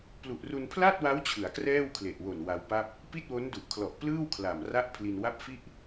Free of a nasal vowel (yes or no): yes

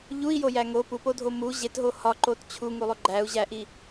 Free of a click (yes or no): no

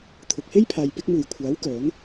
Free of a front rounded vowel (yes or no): no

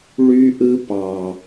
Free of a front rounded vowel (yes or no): no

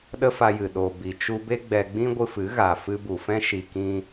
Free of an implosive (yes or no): no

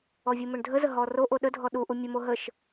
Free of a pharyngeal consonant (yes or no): yes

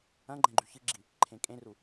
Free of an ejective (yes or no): no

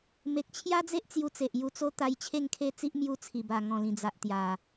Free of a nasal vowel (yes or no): no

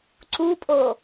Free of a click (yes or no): no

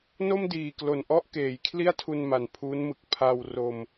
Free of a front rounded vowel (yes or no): yes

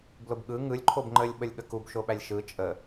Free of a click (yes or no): no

